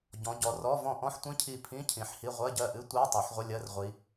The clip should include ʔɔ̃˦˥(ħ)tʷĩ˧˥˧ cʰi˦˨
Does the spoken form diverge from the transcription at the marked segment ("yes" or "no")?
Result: no